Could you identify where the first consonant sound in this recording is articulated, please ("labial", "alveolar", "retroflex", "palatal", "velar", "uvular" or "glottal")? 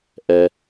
glottal